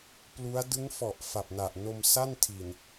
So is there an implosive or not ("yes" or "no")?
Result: no